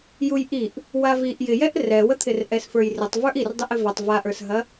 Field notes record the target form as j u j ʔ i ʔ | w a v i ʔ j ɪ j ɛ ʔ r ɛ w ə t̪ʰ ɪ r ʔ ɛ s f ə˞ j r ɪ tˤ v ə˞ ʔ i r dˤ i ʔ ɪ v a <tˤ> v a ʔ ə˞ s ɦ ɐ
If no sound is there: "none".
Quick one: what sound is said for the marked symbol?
tˤ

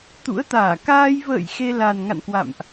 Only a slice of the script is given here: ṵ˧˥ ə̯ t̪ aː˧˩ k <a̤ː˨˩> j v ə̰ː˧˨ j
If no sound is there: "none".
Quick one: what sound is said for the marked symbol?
aː˧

